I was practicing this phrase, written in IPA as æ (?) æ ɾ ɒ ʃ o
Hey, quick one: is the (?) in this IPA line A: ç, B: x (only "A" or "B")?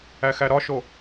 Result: B